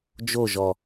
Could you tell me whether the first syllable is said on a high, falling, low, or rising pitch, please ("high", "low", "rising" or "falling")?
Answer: falling